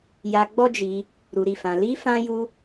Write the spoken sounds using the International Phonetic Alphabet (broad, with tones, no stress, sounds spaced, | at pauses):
j a˧ ɡ͡b ɔ˦ d͡ʒ i˧ | ɾ u˨ ɾ i˨ f ã˨ l i˧ f ã˧ j u˧